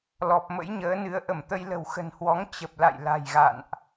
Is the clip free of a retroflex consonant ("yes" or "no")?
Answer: yes